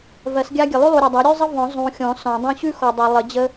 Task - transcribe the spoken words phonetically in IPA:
vɜ˨˩˦sɡʲa˥ɡʲə˨ lˠʉ˥lˠu˨ɾʲɔ˨dˤa˩˥ ɾʲʉ˥zˤə˥ vɔ̃˨˩˦ zˤũ˨xʲɔ̃˨˩˦ sɔ̃˨˩˦dˤũ˥ ɕʉ˥xɔ˨dˤɜ˨ lˠə˨˩˦d͡ʑə˥

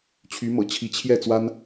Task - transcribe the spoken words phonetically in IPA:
t͡ɕʰy˧˥mɤ̰˨˩t͡ɕʰi˧˥ t͡ɕʰjɛ˥˩ t͡swa˥n

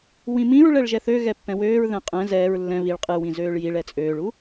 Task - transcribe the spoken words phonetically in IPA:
wĩmĩɹ ɭɛɭʒɛθø ɣɛpːɛ̃wøːɹ ðɛ̃qʼɛ̃ zɛːɹ lːɛ̃ βiɭ qʼɨwĩzøːɭ jiɭ ɛt͡sʼøːɭu

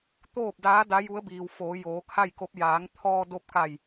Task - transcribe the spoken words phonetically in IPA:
t̪oː˥˨p̚daː˧˥ da˧˥ju˧˥ə̯biː˩w foː˩˧joː˩˧kʰa˥˨jko˧˥p̚ jaː˩˧ŋt̪ʰɔː˧do˧p̚ka˧˩j

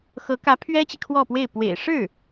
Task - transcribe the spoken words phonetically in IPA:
xɤ˧˥ kä˧˥pʰɥɛ˥t͡ɕi˨ kʰwɔ˥˧pwe˥˩ɪ̯ pwḛ˨˩ɪ̯ʂɻ̩˥˩

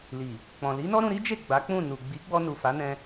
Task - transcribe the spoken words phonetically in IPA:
li˨ | k͡pɔ̃˨li˨˦nɔ˦ ɾũ˧ɾi˦d͡ʒe˦˨ ɡ͡ba˨˦k͡pũ˦˨nu˨ ɡ͡bi˨˦ɡ͡bɔ˧ nu˨ fa˨˦nɛ̃˧

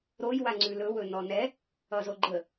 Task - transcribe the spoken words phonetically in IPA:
ɾoj waŋ͡ǀʉlɵ wɵnɔnɛ | ʌzoɡ͡ǃə

